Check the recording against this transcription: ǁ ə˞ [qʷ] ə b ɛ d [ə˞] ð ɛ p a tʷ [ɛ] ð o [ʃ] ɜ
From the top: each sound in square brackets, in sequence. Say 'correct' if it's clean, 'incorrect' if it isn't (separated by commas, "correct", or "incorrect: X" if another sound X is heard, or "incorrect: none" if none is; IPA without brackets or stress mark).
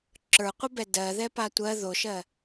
correct, incorrect: ɜ, incorrect: ɜ, correct